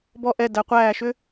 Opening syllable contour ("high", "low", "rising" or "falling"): falling